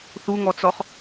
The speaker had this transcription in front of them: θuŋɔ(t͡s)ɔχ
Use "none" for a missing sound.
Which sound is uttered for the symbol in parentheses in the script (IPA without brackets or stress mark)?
t͡s